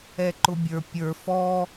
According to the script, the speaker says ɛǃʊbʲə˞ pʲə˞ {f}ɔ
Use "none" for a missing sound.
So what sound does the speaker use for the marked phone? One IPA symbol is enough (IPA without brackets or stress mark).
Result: f